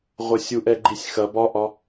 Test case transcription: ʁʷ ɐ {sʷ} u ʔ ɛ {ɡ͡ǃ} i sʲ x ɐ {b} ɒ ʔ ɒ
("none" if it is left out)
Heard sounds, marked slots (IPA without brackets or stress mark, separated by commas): sʲ, ɡ͡ǃ, b